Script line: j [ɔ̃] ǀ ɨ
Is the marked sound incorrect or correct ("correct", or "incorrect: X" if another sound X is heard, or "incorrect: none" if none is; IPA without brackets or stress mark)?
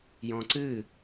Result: correct